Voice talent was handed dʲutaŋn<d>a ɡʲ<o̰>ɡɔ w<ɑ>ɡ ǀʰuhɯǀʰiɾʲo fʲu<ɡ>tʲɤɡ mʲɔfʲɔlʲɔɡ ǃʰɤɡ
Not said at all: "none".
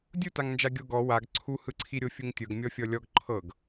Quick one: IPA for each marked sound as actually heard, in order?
d͡ʒ, o, a, ŋ

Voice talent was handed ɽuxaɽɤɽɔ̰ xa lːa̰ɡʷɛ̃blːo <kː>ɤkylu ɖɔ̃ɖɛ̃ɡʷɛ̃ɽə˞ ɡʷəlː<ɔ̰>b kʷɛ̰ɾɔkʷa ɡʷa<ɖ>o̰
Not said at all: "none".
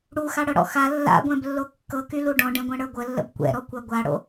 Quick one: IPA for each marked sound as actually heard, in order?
kː, ə̰, ɽ

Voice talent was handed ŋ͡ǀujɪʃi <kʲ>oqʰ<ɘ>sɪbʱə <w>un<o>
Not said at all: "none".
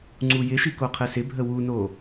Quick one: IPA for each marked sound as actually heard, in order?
k, ɘ, w, o

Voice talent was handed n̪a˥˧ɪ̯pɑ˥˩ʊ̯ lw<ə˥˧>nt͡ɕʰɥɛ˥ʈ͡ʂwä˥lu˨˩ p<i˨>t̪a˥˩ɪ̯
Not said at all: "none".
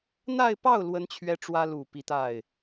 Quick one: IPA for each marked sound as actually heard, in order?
ə˥, i˧˥

